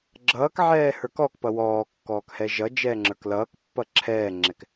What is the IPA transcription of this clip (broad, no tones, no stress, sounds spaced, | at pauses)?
ɡ͡ǁ ʌː k ʕ ɛː h ə˞ k ɔ k p ʌ w ɔː kː ɔː k h ɛ ʒ ʌ d͡ʒ ɛː ŋ͡ǁ ə˞ k l ʌː k pː ʌ ǁʰ ɛː ŋ͡ǁ ɛ k